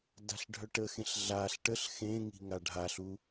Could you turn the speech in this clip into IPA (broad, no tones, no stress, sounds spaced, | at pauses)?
d a̤ ɬ ɖʱ œ ʈ ə x ẽ ɬ ɮ a ɬ ʈ ə ɬ x ẽ ŋ i̤ ŋ a ɖʱ a ɬ u